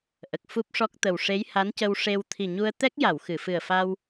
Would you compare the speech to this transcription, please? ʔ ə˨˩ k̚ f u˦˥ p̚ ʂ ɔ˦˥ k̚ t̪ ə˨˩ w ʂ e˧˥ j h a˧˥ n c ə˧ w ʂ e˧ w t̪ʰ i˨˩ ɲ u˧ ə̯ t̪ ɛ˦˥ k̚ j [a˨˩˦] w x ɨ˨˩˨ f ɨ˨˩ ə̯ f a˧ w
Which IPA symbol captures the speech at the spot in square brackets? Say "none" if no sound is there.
a˨˩˨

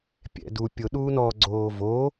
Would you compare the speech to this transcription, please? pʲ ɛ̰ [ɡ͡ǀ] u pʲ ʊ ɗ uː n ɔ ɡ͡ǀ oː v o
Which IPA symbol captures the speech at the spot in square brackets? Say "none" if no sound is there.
d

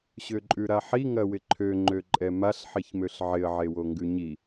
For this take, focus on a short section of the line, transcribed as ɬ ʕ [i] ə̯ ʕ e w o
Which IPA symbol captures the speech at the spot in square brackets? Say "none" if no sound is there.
ɪ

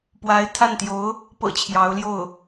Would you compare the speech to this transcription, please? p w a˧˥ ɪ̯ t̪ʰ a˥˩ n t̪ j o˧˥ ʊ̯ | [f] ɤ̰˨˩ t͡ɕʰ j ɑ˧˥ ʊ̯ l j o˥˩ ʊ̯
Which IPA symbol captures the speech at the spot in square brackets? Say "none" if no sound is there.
p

